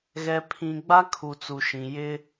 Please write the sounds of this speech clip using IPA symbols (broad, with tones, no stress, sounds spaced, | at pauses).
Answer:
ɣ ɛ˨ pʰ ĩ˨ ɡ͡b a˦ kʰ u˨ t͡s u˨ ʃ ĩ˨ j ɪ˦